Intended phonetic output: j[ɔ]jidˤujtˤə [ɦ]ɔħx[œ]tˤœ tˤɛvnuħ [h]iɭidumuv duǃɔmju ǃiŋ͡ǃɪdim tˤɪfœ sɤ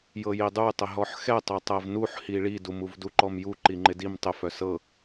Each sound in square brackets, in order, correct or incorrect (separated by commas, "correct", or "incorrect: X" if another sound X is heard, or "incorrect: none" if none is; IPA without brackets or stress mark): incorrect: ɤ, correct, incorrect: ɛ, correct